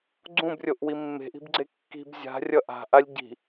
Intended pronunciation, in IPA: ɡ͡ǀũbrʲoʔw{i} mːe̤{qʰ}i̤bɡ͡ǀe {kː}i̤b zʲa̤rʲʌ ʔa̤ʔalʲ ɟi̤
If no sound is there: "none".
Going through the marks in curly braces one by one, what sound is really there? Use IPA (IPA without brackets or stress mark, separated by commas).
i, ʔ, kː